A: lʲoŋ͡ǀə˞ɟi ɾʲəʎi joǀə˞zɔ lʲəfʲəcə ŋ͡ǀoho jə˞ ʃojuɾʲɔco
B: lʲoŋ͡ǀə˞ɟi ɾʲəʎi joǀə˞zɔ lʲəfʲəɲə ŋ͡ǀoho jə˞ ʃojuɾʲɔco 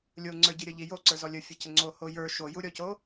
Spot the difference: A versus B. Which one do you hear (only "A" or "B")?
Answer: A